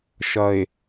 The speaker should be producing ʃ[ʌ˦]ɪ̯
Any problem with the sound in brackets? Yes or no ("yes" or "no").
yes